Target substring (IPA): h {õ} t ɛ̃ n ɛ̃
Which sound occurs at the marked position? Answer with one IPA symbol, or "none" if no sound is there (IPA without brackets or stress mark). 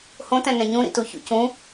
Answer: õ